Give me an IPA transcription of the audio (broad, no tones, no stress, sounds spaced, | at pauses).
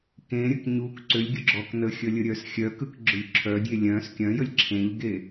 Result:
k ẽ ɾʲ ə k ɲ u k ǀ ʏ lʲ ɡʲ ʊ ɡ͡ǁ ɔ k n ə xʲ ə lʲ ə ɾʲ œ s xʲ œ k ɯ k ɡ͡ǁ ʊ ʎ ǁʰ œ dʲ e lʲ œ̃ s kʲ œ̃ j ə lʲ ǁʰ ẽ ʎ ɡ e